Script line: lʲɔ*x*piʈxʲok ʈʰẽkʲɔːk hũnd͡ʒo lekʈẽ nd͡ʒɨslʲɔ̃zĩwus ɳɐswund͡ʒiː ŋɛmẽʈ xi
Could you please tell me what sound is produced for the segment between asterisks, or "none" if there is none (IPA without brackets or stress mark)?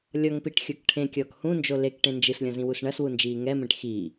ŋ